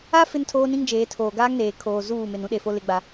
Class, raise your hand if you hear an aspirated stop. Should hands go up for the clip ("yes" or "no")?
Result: yes